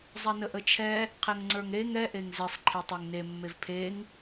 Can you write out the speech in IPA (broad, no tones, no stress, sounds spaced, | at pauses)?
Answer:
zˤ ɛ n ə ʔ ə t͡ʃʰ ɛ | qʰ ɛ ŋ ŋ͡ǀ ə˞ ŋ ɾ e ŋ ɛ ʔ e ŋ z e sˤ ǃʰ e tˤ e ŋ n e mː e v pʰ e ŋ